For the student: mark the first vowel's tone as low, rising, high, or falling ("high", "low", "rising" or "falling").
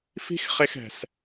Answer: high